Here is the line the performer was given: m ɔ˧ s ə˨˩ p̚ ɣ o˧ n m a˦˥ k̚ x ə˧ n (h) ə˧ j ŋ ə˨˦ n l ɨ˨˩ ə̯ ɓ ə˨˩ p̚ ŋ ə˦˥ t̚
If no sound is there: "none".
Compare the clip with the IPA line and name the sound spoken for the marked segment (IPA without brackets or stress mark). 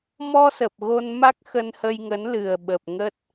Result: h